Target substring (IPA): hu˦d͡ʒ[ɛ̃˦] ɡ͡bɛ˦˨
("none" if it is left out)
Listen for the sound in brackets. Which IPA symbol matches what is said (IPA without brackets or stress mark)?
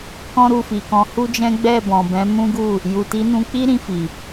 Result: ɛ̃˦